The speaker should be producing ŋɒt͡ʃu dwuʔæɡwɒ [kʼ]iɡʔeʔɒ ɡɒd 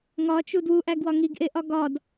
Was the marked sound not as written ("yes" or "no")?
yes